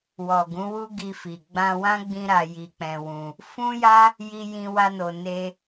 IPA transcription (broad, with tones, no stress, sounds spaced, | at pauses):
w ɔ˨ ɡ ũ˨˦ w u˦ ɡ i˧ f i˨ ɡ͡b ã˧ w ã˦ ɡ͡b ĩ˦ ɾ a˧ j i˧ k͡p ɛ̃˧ w ũ˧ | f ũ˦ j a˦ | j i˦ j ĩ˦ w a˦ n o˧ n e˦